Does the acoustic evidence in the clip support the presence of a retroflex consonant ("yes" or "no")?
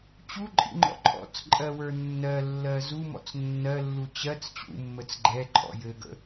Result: no